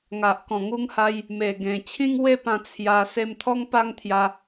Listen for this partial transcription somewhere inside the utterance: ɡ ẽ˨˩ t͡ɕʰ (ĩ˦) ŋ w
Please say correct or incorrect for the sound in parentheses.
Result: correct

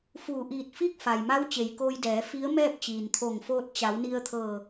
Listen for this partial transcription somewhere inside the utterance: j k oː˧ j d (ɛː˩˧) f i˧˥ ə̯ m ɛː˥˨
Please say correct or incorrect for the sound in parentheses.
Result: correct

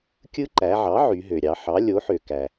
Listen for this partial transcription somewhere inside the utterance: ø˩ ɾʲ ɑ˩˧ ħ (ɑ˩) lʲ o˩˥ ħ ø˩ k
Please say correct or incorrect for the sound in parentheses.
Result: incorrect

